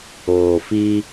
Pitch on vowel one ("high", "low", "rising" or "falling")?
low